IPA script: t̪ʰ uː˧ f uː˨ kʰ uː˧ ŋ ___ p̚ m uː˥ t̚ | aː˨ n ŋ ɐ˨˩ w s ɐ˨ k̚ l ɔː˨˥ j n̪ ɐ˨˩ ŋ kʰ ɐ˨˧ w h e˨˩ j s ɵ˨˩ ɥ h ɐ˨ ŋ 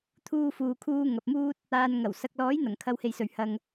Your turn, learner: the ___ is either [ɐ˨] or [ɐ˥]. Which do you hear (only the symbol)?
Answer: ɐ˨